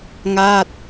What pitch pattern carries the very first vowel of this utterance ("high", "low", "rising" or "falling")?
falling